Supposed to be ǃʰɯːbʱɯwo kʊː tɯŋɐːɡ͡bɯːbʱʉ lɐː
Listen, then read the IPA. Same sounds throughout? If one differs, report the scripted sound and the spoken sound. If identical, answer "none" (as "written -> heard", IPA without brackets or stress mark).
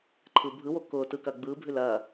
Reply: ŋ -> k